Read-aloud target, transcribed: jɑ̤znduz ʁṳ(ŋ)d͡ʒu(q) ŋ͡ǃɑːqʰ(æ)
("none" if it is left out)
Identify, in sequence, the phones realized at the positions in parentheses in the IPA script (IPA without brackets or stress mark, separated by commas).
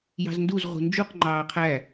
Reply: n, q, æ